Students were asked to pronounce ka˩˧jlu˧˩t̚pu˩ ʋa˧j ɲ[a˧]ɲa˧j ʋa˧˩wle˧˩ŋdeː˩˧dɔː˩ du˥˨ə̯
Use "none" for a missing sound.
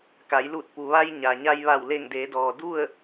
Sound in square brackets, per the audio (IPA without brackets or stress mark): a˩